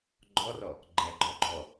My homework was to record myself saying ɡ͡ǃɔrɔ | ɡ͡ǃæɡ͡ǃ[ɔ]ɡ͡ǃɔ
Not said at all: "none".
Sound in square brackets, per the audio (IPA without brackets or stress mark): ɔ